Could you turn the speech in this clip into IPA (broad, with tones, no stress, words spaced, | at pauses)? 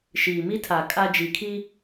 ʃiː˨mi˦tʰa˨ kʼa˦d͡ʒi˨kʰi˦